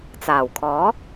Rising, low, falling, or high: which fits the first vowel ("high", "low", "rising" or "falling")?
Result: low